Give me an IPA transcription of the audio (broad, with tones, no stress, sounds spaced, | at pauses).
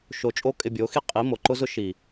ʃ o˧ t͡ʃʼ o˦ kʼ ɪ˧ bʲ o˨˦ x i˦ qʼ i˨˦ m o˨ ǃ ʊ˦ z ʊ˦ ʃ i˨